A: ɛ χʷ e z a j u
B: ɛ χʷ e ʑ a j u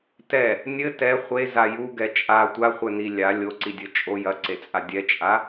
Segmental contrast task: A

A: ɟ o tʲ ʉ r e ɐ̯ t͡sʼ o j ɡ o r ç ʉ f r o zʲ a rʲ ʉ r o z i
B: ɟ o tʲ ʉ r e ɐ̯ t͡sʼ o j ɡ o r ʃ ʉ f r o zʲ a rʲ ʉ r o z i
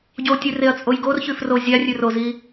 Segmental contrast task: A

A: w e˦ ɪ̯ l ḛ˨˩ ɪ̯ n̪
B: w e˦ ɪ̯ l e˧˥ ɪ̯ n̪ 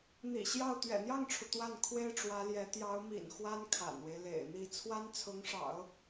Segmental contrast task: A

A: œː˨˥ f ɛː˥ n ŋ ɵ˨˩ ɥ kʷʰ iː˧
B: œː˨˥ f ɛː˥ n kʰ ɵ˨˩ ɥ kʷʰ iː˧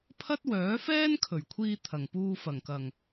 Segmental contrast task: B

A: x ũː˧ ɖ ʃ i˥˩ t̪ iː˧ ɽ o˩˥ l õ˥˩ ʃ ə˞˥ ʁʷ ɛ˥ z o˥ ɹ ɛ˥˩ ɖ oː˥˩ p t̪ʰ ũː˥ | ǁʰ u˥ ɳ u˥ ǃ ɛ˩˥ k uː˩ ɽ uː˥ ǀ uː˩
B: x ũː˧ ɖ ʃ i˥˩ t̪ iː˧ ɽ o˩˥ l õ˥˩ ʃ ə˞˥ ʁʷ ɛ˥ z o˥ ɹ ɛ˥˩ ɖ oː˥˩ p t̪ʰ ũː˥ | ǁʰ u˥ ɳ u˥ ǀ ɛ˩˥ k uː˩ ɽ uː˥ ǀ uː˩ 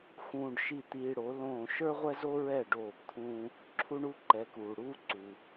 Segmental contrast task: A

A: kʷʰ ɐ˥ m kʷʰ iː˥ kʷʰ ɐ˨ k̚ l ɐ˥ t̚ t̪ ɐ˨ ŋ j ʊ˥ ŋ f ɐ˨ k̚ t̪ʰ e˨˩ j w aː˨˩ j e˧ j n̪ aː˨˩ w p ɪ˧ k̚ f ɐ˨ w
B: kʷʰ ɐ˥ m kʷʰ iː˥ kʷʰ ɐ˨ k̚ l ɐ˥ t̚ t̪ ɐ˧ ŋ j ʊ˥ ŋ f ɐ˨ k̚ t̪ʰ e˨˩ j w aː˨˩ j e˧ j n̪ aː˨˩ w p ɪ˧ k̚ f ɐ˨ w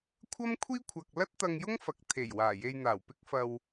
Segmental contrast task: B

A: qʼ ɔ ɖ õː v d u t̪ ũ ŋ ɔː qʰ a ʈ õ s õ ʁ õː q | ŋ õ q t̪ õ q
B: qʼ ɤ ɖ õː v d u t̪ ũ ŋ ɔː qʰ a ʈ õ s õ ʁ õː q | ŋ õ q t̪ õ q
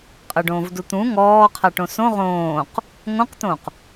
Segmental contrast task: B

